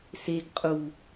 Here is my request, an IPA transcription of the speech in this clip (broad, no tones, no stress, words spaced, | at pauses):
seɡ qʼu